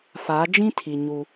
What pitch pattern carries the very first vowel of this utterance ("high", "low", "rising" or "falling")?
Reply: rising